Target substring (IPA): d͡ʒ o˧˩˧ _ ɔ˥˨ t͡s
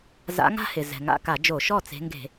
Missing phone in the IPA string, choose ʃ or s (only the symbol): ʃ